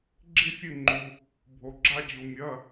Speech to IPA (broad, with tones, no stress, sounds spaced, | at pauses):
ɡ͡ǁ i˧ fʲ ɨ˧˩ ŋ͡ǃ u˩ | bʱ o˩ ɡ͡ǁ a˧ d͡ʑ u˩ mʲ ɐ˩˧˩